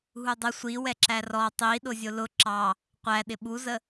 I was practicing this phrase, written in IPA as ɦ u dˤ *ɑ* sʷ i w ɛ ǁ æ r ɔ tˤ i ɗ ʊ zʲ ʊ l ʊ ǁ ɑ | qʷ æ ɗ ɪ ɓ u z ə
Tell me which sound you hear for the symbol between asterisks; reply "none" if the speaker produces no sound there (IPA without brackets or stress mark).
ə